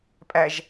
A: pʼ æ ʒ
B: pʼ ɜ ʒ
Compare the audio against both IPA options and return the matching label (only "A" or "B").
A